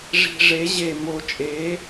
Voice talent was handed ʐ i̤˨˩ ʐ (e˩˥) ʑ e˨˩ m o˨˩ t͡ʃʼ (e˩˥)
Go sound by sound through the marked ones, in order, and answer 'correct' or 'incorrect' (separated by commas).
correct, correct